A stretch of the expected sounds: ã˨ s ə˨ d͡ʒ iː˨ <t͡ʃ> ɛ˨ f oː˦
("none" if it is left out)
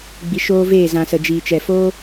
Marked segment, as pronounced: t͡ʃ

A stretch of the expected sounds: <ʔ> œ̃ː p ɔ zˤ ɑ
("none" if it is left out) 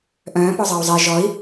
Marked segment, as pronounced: ʔ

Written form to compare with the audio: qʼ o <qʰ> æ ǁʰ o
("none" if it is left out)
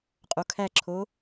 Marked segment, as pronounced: kʰ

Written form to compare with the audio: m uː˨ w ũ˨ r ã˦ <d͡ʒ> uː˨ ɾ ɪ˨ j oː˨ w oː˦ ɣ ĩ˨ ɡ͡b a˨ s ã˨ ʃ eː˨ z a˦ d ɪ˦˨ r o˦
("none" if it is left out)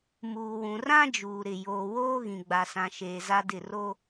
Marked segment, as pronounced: d͡ʒ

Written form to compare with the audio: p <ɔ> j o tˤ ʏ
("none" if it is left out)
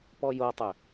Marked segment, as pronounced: ɔ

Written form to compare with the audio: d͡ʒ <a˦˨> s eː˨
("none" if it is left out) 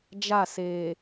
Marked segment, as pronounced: a˦˨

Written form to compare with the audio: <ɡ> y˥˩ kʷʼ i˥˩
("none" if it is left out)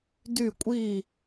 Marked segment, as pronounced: d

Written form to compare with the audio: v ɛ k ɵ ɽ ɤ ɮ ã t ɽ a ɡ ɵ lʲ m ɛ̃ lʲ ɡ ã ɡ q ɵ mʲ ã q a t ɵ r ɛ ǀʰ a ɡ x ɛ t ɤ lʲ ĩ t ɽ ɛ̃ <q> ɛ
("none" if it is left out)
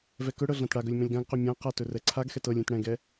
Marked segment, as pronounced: ɡ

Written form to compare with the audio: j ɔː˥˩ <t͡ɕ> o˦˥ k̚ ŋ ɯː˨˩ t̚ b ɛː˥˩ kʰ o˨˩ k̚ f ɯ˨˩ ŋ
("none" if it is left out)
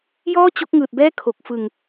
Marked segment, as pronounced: t͡ɕ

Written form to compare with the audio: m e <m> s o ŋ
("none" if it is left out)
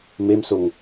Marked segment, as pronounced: m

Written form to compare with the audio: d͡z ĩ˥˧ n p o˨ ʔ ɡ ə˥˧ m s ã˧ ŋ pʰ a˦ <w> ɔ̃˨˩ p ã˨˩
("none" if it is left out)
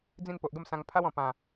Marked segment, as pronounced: w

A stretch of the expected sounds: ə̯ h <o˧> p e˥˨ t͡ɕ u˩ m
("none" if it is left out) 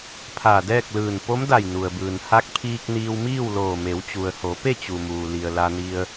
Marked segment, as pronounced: o˩˧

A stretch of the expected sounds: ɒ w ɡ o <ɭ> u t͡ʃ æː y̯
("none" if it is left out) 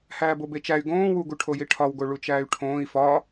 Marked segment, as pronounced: ɭ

